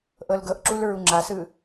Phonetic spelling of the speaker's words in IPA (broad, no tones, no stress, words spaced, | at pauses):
ʔɤlɡɤʔǁul ɹuŋ͡ǁasɯ